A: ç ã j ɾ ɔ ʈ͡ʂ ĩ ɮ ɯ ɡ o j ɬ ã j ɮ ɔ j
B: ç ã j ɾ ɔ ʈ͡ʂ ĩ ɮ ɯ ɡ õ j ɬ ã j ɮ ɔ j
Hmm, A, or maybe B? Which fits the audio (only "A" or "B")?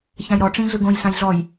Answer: B